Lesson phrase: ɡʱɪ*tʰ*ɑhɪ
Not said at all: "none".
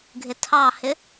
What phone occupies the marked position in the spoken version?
tʰ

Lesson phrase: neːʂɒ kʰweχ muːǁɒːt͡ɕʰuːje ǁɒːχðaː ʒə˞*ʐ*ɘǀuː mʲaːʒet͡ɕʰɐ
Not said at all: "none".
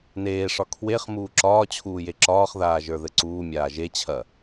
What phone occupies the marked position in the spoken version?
ð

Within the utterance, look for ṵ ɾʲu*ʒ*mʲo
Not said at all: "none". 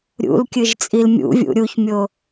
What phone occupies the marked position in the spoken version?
ç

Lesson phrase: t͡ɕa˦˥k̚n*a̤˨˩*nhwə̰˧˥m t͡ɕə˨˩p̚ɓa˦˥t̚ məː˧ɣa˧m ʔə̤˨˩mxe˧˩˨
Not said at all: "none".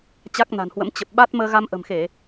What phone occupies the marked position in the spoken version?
a̤˨˩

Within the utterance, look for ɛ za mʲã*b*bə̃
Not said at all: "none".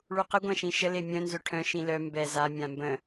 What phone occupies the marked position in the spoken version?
m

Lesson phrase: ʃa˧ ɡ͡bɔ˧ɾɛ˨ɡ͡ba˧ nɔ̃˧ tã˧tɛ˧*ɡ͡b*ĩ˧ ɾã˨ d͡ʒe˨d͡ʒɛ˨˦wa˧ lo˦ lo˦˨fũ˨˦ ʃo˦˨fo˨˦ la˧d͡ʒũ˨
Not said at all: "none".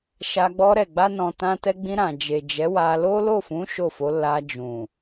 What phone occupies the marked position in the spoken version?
ɡ͡b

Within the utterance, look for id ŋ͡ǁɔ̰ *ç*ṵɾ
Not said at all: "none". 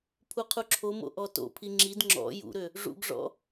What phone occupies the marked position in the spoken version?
j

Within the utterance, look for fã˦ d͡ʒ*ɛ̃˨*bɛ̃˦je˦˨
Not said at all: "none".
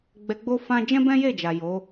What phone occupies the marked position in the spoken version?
ɛ̃˦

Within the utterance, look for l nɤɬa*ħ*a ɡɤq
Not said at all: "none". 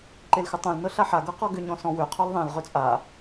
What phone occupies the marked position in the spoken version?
ħ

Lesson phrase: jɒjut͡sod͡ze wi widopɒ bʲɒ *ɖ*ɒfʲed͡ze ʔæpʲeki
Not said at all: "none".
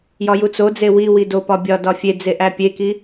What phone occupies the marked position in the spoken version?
d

